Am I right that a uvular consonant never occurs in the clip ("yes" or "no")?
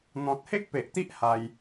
yes